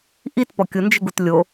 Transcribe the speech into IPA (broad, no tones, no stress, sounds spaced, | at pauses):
ʔ i t p ɔ kʲ ʊ n d͡ʒ ɪ ɡ u t lʲ o